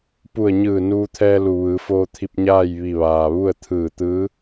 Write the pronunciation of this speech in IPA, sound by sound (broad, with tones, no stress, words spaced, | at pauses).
pu˧˩ə̯ɲɯː˧˩ nuː˧t̪ʰɛː˧lu˩ ʋɯː˩˧foː˧t̪ʰi˧p̚ ɲaː˥˨jʋi˧˩ʋaː˩ʋu˥˨ə̯ t̪ʰɯː˧˩t̪ɯː˧˥